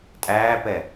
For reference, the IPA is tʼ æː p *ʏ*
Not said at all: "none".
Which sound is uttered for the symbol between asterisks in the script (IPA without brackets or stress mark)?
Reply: ɛ